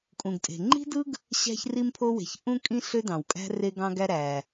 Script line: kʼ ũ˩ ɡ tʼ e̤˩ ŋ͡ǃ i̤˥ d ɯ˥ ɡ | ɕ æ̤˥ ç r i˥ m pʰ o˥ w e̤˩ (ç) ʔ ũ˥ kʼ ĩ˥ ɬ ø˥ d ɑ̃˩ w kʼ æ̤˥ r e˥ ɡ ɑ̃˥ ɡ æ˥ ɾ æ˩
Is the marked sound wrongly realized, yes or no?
no